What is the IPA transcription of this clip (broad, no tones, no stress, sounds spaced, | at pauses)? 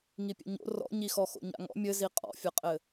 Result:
ŋ i pʲ ɛ̰ ɲ o̰ r ɔ̰ ɲ i x ɔ x o̰ ɲ a̰ ŋ ɔ̰ mʲ ɘ z i qʼ ɔ̰ fʲ ɐ qʼ ɘ